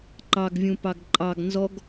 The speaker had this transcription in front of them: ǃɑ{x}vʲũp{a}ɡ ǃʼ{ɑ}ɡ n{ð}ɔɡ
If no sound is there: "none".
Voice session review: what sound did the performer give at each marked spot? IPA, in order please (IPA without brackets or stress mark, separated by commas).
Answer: ɡ, ɑ, ɑ, z